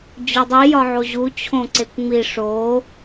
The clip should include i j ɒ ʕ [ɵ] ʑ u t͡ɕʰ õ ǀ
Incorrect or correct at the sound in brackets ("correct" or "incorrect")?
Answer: incorrect